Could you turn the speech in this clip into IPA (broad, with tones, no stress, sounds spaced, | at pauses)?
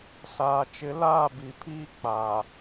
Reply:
s aː˨ t͡ʃ ɪ˨˦ l aː˦˨ b i˨ pʰ iː˦ k͡p aː˨